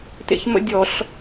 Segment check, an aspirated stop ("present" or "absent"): absent